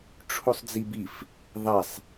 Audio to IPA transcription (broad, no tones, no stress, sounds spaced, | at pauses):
ʈ͡ʂʰ u sˤ d͡z i b i f | ðˤ ɛ sˤ